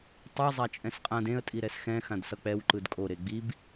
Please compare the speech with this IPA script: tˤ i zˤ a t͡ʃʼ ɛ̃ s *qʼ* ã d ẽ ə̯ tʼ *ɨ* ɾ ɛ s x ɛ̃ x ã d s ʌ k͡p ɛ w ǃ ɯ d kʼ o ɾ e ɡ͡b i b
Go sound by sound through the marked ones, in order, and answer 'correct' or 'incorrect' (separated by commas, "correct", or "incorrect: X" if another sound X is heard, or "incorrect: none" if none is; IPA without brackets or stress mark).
correct, incorrect: i